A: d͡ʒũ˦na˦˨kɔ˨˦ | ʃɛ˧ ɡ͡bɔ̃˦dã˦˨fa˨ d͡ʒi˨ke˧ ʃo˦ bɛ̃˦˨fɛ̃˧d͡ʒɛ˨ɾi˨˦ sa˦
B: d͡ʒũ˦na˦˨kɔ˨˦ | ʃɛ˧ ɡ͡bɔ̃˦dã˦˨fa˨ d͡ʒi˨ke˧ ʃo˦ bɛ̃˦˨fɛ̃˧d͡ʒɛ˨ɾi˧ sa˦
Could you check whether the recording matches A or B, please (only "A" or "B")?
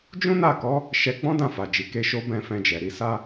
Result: A